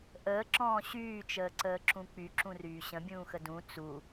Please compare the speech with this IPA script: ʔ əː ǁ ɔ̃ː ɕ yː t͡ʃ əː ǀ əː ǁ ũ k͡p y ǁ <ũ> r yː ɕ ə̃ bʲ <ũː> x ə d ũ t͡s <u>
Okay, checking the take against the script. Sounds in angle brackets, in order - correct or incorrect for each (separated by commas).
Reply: correct, correct, correct